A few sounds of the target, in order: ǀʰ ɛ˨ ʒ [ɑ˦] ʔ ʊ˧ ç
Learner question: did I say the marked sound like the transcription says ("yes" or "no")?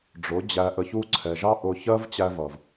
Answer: yes